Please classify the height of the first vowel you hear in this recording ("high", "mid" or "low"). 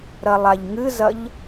low